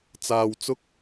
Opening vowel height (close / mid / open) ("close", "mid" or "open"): open